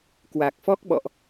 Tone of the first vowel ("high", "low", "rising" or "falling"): low